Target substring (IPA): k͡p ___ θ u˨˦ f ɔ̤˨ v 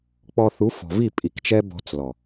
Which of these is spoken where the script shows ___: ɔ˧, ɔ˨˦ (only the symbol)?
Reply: ɔ˧